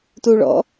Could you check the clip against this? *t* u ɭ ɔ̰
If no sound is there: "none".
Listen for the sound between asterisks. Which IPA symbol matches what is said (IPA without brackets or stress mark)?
t